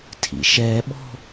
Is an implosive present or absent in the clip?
present